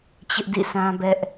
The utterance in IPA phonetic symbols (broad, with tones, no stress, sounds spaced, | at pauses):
t͡ɕ ɪ˦ ʔ d ḭ˦˨ sʰ ã˦ b ɛ˦ ʔ